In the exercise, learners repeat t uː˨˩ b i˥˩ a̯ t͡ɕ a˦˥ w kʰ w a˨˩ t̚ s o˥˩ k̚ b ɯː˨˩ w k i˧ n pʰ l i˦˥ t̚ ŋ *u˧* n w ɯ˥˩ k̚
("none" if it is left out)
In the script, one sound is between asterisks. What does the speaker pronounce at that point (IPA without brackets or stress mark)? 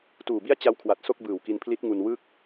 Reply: u˧